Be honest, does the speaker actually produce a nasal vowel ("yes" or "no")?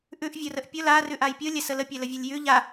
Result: no